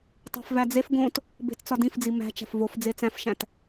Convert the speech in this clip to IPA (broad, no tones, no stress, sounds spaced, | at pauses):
tˤ æ̤ f v æ d͡z e f ɡ õ t | b e̤ t t͡s ɒ d ĩ f d͡z i m æ̤ t͡ʃ æ̤ f v o f d͡z e t͡s æ̃ f ʃ æ̃ t